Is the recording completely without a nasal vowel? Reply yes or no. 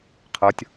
yes